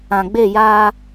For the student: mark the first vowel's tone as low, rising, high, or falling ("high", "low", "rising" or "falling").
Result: low